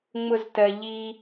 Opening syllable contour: high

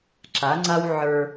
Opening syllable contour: rising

